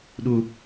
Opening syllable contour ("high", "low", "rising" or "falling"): low